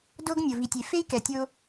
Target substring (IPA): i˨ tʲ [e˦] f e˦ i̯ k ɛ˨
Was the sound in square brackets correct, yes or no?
no